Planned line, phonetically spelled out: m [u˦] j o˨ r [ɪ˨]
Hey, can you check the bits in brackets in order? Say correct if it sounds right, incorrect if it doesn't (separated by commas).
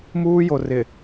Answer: incorrect, correct